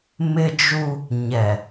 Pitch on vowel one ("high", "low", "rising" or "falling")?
high